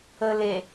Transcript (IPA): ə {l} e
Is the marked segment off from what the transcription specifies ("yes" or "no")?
no